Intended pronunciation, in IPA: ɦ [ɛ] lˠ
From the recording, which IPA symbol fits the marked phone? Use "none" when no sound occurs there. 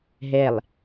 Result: ɛ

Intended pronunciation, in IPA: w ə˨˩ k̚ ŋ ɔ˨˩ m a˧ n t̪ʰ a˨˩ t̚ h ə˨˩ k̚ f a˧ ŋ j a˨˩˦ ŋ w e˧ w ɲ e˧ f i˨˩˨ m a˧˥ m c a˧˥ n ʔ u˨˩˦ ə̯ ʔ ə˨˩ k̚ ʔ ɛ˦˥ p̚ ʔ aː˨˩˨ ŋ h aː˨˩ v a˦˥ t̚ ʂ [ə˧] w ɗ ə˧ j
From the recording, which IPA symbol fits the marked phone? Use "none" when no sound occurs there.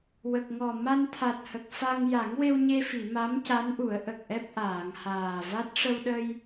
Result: ə˧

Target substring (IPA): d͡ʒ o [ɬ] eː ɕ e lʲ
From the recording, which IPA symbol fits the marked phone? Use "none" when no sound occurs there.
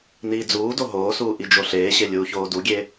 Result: ɬ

